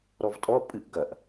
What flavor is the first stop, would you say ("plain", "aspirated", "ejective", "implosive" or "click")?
ejective